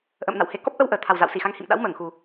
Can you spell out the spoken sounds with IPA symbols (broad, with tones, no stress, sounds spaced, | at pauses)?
ʔ ə̰ː˧˨ m n a̰˧˨ w h e˨˩ k ɔ˦˥ p̚ ʔ ə˧ w ʔ əː˨˩ t̪ʰ a˨˩ w z a̰˧˨ w s i˧˩ x a˨˦ ŋ h ḭ˧˨ m ɗ a̰˧˥ w m əː˧˩ ŋ x u˨˩